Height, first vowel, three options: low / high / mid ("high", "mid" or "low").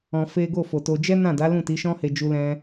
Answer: mid